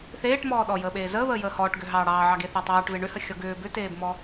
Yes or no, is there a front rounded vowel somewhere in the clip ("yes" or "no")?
yes